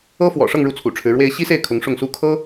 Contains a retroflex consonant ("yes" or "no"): yes